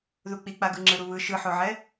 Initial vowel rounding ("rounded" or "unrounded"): rounded